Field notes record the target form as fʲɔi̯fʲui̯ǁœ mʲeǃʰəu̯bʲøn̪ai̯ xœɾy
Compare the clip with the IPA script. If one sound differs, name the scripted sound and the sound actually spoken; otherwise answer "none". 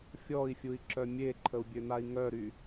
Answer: x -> ŋ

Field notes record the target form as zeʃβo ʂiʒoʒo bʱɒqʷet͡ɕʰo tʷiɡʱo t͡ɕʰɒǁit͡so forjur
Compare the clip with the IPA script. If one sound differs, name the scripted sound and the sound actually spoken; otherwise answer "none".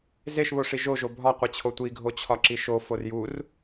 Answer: t͡s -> ʃ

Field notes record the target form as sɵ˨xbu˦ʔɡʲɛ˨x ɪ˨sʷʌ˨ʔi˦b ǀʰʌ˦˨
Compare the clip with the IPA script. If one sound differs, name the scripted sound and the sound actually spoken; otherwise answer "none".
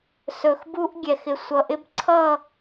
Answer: i˦ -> ɪ˦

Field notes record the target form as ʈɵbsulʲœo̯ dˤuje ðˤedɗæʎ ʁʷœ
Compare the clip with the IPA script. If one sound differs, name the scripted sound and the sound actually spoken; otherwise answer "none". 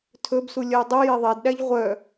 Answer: ʈ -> tʰ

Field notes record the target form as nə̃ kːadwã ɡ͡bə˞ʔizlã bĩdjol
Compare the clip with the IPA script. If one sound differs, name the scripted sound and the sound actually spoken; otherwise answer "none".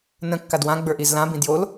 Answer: none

